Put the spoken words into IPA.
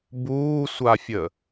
b uː sʷ a fʲ ə

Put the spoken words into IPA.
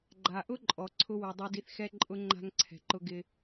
ɡ͡ǃ a˨ ʔ ʊ˦ ǃʼ ɔ˨ ǀʰ ʊ˦ w u˨ dˤ u˧ d i˧ θ x ɛ˦ ǃʼ ʊ˦ ŋ͡ǃ a̤˦ ŋ ǀʰ ɛ̤˨ ǃ ʊ˦ ɡ ɪ˧

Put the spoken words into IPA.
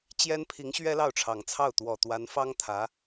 t͡ɕ j ɛ˥ n pʰ i˧˥ ŋ ɕ ɥ ɛ˥ l ɑ˥˩ ʊ̯ ʈ͡ʂʰ ɑ˨˩ ŋ t͡sʰ ɑ˥˩ ʊ̯ t̪ w ɔ˨˩ t̪ w a˧˥ n f ɑ˥ ŋ t̪ʰ ä˧˥

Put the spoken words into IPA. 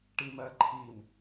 ʈ i m ɜ ǃʰ i m

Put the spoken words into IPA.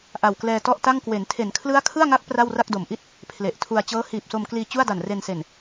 ʔ a˨˩ w k l ɛː˧ t ɔ˥˩ ʔ t a˥˩ ŋ k w e˩˦ n tʰ e˩˦ n kʰ l ɯ˦˥ a̯ kʰ ɯ˥˩ a̯ ŋ a˦˥ k̚ p r a˥˩ w r a˥˩ k̚ d o˩˦ m ʔ i˥˩ t̚ | pʰ l e˨˩ ʔ tʰ u˧ a̯ t͡ɕ ɤː˦˥ h iː˨˩ p̚ s o˧ m k l iː˧ t͡ɕ u˥˩ a̯ d a˨˩ n r e˧ n s e˨˩ n

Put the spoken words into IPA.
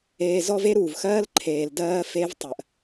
eː˧ z ɔ˦ v e˦ ɾ uː˨ v x ɜː˦ l ǃʰ eː˨ l d ɜː˧ f e˧ v tˤ ɜ˨ ʔ

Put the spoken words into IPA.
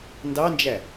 n d ɑ n d͡ʒ æ

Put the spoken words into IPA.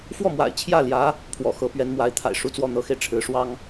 f w ɔ˥˩ m w a̰˨˩ ɪ̯ t͡ɕʰ j ä˥˩ l j ä˧˥ | pʰ w ɔ̰˨˩ x ɤ˧˥ p ɥ ɛ˧˥ n m w a˧˥ ɪ̯ t̪ʰ a̰˨˩ ɪ̯ ʂ u˧˥ t͡s w ɔ˥˩ n̪ ɤ˧˥ x e˧ ɪ̯ ʈ͡ʂʰ ɻ̩˧˥ ʂ w ɑ˥ ŋ

